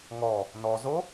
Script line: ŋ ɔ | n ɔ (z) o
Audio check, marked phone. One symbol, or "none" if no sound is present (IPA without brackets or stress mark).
z